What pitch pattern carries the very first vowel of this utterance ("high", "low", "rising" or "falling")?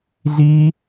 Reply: high